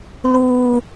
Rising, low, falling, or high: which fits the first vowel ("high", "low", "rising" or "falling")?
high